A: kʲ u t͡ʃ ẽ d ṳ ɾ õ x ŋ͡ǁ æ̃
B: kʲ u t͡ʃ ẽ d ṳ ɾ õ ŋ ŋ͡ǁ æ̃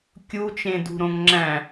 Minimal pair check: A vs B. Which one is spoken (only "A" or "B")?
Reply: B